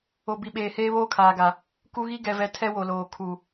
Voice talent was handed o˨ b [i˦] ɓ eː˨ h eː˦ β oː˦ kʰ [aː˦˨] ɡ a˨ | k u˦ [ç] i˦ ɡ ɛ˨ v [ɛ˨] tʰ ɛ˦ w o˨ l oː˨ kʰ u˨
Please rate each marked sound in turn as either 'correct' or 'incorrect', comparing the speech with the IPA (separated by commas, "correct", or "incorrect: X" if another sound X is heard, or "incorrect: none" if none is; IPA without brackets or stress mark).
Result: incorrect: i˨, incorrect: aː˨, incorrect: ɣ, correct